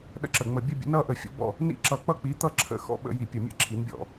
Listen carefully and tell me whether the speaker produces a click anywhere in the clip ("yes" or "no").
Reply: yes